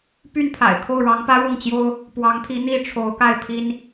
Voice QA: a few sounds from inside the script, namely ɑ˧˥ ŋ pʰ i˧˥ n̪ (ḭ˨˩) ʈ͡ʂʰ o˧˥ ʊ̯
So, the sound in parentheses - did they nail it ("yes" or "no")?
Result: no